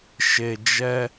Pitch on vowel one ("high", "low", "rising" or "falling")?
low